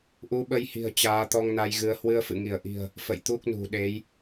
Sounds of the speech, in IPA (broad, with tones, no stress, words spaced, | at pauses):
ʔu˨˦ɓə˧jhi̤˨˩ə̯ t͡ɕaː˨˦t̪ɔ˧ŋna˧jɣɨ˨˦ə̯ hwɨ˧ə̯fɨ̰˧˨ŋi˧˩ə̯ʔi̤˨˩ə̯ | fə̰˧˨jt̪u˦˥k̚nṳ˨˩ɗe˨˦j